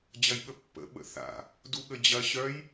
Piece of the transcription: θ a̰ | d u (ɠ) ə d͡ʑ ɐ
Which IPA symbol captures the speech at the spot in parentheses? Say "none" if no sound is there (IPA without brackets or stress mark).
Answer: ɠ